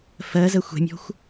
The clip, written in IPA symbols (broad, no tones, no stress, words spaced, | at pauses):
fɜzɜ xʷɛ̤mʲɔ̤xʷ